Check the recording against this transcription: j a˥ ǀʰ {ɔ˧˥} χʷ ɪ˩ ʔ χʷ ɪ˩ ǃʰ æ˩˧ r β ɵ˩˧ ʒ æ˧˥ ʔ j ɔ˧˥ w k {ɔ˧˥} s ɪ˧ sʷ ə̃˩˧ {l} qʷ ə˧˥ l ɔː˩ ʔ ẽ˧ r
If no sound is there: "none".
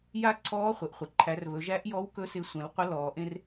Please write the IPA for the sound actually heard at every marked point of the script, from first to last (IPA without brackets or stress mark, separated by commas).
ɔː˧˥, ɵ˧˥, l